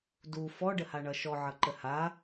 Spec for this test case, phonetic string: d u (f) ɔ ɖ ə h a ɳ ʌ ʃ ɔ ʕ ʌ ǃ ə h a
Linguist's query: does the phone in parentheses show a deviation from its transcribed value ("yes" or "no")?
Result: no